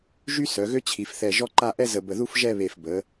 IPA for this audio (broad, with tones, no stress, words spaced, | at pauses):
ʒy˥ sœ˩˧ɣø˥t͡ɕʰi˩˧f θɛ˧˩ʒɔ˥ǃa˥˧ ʔɛ˥zə˧˩bə˧˩ðu˥f ʒɛ˥˧βe˧˩fbə˩˧